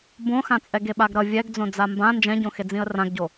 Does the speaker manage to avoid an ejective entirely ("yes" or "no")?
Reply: no